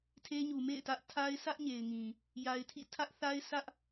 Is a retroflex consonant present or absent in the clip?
absent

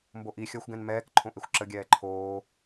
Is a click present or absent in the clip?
present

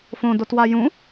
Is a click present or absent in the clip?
absent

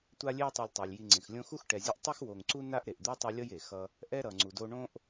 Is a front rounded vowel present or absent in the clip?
absent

